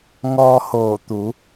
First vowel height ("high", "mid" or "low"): mid